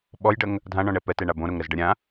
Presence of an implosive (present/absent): present